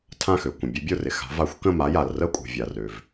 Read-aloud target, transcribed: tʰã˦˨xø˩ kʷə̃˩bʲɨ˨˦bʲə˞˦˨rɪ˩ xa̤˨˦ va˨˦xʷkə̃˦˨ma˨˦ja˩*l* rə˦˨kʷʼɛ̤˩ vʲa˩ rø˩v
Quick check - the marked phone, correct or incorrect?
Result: correct